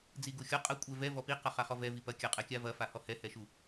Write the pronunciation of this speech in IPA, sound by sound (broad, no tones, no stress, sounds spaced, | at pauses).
d͡z i ɡ u xʲ ɔ qʼ ɐ kʷʼ ɛ v ɛ v ɔ p i q a χ a χ ɔ v ɛ v i p ɐ kʲ a qʼ ɛ kʲ a v ɐ f a h ɔ h ɛ h ɛ ʃ u